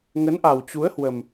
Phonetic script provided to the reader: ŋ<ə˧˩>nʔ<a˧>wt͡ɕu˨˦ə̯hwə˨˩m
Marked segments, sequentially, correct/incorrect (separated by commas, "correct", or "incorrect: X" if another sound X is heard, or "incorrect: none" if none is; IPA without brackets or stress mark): incorrect: ə˨˦, incorrect: a˨˩